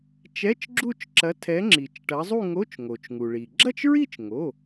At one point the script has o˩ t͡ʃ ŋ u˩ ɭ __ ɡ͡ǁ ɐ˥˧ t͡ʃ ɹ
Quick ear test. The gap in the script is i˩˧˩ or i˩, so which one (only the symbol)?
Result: i˩